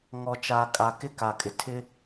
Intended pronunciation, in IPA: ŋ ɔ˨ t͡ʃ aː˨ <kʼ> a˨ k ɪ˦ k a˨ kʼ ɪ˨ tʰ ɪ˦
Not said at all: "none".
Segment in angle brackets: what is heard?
kʼ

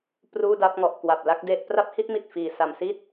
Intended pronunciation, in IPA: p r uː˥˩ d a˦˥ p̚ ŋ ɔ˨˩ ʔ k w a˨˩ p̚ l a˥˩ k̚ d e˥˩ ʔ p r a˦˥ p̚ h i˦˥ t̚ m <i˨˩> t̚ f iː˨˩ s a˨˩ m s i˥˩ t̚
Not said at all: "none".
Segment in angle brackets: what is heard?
i˨˩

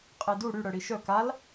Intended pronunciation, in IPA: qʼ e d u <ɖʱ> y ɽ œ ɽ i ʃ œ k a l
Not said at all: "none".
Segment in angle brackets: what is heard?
ɽ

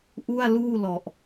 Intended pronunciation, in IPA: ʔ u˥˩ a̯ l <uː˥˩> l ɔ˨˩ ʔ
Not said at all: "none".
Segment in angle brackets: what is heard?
uː˥˩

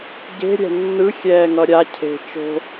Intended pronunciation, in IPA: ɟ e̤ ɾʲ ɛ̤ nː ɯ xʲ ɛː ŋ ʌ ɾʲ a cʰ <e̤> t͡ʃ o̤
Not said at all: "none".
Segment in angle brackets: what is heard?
e̤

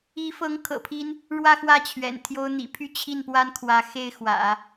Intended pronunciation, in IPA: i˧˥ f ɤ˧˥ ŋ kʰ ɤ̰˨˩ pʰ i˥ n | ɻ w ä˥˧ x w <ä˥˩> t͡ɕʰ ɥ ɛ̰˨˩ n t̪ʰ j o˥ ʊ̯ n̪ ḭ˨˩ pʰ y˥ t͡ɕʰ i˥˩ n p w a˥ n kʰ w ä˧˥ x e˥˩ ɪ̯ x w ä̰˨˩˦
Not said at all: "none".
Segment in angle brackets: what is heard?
ä˥˩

